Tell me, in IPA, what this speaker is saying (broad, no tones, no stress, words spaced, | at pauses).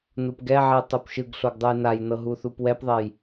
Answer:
nupɡɛʕe tˤupʃɯɡɬoɡ dˤɯjnajnɤ ɦuθupwɛpðˤɛj